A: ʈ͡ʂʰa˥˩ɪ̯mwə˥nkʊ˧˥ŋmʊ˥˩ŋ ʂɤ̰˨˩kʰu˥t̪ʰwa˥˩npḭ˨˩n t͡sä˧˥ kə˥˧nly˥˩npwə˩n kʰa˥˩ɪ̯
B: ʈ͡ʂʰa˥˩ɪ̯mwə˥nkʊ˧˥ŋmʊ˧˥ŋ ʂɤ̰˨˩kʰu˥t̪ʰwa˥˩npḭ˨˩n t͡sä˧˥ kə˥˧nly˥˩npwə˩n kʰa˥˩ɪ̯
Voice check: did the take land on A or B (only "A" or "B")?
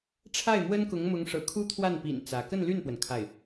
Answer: B